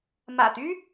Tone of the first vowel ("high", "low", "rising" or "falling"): low